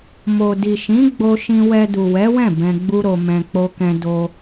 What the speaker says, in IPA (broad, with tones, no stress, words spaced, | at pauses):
mo˨ di˨ʃĩ˨˦ ɡ͡bo˧ʃĩ˧wɛ˧ du˨wɛ˨˦wɛ̃˦˨ bɛ̃˧ɡ͡bu˦ɾo˧ mɛ̃˧k͡po˦kɛ̃˦ do˧